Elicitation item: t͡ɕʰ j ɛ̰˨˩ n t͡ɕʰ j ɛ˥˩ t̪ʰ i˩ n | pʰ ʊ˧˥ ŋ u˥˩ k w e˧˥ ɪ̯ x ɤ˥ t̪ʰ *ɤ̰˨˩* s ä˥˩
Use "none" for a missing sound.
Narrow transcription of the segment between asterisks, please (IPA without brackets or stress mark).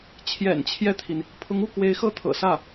ɤ̰˨˩